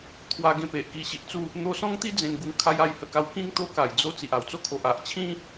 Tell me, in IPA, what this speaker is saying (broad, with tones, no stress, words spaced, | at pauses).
t̪ʰwa˧ɡẽ˧ pe˨ʔki˧ɕi˨ʔt͡su˥˧ | n̪o˧sɔ̃˦ŋt̪i˦ d͡zẽ˧nɡu˧ŋ kʰa˧j a˥˧jhə˧ka˧w kĩ˦ŋ t̪o˦ka˨˩j d͡zo˧ t͡si˨ʔa˨˩wt͡so˥˧kʰo˨ʔ a˨ʔt͡ɕʰĩ˦